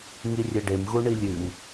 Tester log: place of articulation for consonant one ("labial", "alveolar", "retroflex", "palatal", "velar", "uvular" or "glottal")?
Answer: velar